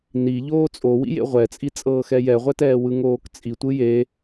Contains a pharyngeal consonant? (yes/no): no